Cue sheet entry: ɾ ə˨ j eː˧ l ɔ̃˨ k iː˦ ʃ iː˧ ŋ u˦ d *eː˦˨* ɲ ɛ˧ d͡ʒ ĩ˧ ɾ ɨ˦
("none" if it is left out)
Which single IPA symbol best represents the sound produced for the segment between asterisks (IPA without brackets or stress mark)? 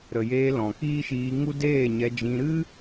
eː˦˨